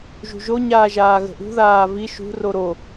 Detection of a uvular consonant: absent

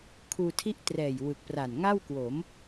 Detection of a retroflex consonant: absent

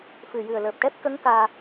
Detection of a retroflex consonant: present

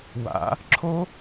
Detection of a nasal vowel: absent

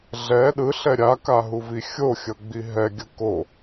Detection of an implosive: present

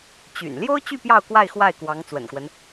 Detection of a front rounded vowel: present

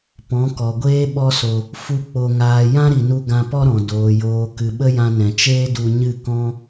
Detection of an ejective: absent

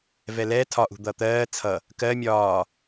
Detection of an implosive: absent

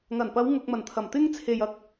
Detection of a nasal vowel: absent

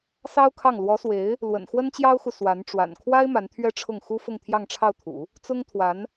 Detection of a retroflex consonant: present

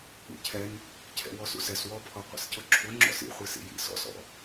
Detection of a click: present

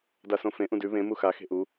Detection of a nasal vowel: present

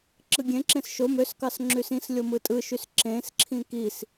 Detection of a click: present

